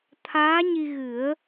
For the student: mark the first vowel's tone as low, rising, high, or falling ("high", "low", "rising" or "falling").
rising